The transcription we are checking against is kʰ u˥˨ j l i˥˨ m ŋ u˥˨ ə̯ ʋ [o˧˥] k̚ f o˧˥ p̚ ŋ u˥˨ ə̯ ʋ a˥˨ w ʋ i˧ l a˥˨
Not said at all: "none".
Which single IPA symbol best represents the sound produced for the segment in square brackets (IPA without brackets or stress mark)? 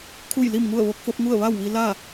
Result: o˧˥